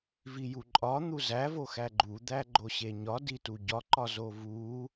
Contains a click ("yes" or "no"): yes